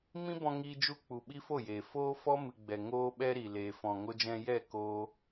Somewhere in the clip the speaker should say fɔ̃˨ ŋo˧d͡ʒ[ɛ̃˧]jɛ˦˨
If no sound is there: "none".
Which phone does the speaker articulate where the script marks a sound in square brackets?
ɛ̃˧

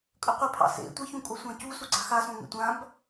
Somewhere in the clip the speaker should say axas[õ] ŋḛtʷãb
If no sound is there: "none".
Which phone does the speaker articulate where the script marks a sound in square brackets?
õ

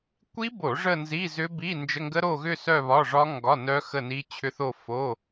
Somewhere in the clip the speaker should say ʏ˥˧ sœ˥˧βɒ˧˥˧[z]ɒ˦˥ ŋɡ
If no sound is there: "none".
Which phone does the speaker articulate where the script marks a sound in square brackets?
ʐ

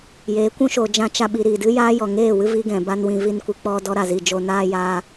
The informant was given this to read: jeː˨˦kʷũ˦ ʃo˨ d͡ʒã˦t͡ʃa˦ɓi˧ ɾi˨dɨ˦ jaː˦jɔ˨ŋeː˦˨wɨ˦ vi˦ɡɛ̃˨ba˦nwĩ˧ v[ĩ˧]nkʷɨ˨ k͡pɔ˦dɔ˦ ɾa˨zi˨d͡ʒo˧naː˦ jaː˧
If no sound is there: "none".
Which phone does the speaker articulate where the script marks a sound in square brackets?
i˧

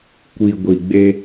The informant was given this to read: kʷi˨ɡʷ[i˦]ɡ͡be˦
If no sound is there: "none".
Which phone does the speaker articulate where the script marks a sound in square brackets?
i˨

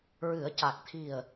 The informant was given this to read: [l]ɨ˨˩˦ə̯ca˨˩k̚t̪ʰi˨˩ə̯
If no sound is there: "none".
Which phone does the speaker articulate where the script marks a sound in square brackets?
ɹ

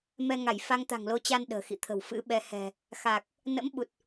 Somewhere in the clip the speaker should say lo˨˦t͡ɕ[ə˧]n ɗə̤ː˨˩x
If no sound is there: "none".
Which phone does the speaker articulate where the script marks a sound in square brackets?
a˧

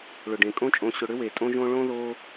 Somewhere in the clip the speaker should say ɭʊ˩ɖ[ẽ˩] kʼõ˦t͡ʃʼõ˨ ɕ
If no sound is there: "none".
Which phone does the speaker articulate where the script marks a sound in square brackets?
ẽ˩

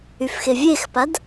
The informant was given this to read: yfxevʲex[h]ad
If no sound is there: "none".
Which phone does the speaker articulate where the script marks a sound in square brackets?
p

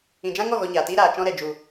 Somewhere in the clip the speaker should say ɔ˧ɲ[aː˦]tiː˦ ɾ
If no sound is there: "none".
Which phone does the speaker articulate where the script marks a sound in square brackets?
aː˨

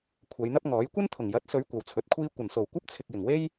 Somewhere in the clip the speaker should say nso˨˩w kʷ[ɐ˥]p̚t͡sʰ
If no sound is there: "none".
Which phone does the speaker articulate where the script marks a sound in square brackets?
ɐ˥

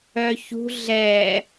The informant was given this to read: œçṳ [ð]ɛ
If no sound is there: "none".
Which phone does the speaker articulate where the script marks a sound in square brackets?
ɮ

